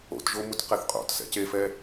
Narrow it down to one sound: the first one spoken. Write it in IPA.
o̰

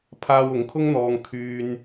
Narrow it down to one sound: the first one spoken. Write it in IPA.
pʰ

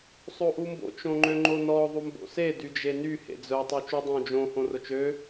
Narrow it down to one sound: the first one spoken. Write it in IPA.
sˤ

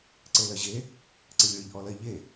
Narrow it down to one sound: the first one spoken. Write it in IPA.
ǀ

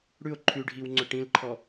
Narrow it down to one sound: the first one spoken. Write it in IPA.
ɽ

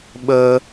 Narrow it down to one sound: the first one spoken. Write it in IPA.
ɓ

